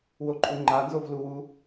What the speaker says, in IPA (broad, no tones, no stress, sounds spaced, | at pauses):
w o ǃʼ u ŋ͡ǃ a n z o v l u w u